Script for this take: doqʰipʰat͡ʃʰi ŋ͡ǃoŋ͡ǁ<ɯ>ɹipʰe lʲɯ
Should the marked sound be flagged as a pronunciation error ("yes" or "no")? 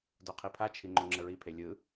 yes